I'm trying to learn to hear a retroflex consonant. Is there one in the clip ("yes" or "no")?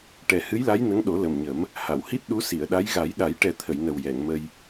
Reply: yes